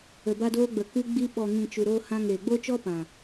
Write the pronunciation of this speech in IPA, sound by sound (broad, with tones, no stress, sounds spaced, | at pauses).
ə˨ b a˧ d oː˧ ɡ͡b ə˨ k ɨ˧ ɡ͡b i˧ ɓ ɔ˨ ŋ ĩ˨ t͡ʃ u˨ ɾ oː˧ h ã˧ ŋ eː˨ ɡ͡b o˦ t͡ʃ ɔ˦ p ã˨